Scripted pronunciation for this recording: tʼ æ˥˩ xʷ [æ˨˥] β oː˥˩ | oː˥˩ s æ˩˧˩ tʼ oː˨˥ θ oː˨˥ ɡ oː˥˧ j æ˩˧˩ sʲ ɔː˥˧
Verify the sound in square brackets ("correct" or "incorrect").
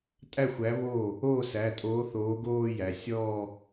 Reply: correct